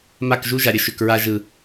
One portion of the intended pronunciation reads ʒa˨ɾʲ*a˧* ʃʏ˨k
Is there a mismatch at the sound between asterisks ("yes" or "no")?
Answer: yes